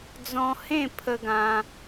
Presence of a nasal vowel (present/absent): present